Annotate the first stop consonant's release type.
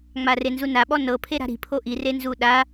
implosive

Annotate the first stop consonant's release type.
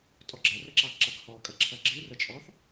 ejective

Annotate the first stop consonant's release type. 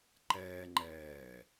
click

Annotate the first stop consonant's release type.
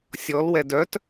plain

